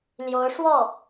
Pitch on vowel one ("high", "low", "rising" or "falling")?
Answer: rising